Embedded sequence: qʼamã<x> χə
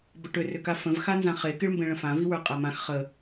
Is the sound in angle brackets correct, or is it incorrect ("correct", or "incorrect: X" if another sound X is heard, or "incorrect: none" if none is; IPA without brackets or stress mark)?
correct